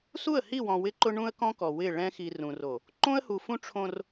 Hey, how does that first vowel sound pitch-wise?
falling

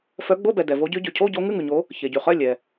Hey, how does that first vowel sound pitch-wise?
rising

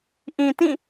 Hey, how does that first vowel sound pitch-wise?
low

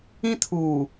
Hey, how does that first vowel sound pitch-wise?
high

